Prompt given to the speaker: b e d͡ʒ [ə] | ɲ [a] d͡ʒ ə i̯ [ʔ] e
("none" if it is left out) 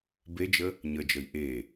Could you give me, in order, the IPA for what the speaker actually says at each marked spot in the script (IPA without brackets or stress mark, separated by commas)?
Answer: ə, ə, ʔ